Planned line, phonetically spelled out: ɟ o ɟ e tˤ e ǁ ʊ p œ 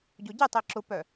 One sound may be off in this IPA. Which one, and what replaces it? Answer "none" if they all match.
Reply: none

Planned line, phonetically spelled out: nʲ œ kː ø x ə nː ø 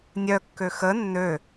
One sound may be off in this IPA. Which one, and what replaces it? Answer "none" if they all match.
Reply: none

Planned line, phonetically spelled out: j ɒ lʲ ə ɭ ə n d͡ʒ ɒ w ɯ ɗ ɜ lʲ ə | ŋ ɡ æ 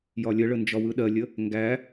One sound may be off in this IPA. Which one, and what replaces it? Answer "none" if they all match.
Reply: none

